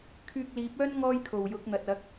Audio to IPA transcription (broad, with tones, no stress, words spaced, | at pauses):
kʰyː˧k̚liː˨˥p̚œː˥n ŋɔː˥jkʰo˨˩wjʊ˨˥k̚n̪ɐ˨t̚ ɐ˨˥k̚